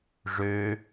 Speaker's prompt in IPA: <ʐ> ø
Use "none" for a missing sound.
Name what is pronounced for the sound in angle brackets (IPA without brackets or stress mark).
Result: ʐ